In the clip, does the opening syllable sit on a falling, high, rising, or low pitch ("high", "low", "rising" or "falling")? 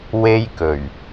high